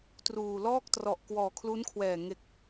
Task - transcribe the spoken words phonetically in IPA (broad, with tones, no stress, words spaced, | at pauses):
truː˨˩ lɔː˥˩k̚ trɔ˨˩ʔkwɔː˨˩kʰlu˦˥nkʰwɛː˨˩ ŋe˨˩k̚